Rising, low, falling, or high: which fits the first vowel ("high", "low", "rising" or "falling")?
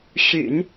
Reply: low